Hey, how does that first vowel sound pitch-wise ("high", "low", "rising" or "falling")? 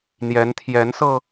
rising